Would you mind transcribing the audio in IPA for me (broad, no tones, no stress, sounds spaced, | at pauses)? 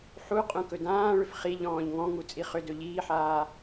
ħ u qʼ ũ k ɵ d ãː ɭ ʏ f χ i ʎ ɔ̃ː ʎ ŋ ɔ̃ ŋ u t͡sʼ i χ ʏ d ɵ ʎ iː ħ aː